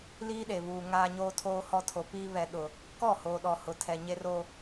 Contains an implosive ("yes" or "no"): yes